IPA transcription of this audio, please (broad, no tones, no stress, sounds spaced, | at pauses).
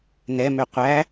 n ɛ m ø qʷ æ